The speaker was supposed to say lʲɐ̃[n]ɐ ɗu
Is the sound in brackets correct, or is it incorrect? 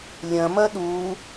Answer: incorrect